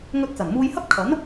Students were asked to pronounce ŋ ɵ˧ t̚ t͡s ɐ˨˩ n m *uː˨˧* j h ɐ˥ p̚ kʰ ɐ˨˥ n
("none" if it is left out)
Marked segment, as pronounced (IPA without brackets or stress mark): uː˧